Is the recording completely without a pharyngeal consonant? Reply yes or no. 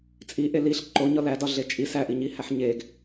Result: no